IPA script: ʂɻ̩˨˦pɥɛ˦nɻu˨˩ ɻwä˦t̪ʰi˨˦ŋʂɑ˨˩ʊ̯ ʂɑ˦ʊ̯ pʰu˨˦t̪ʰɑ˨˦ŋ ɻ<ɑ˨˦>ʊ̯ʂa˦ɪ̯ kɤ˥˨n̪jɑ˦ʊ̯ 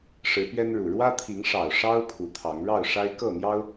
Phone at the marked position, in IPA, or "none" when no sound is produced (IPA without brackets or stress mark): ɑ˥˨